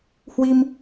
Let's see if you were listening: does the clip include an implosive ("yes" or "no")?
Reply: no